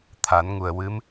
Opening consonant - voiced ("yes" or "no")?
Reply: no